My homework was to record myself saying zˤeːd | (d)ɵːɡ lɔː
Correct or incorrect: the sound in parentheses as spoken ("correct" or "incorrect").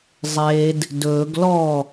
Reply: correct